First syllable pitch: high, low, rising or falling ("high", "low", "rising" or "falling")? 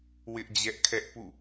high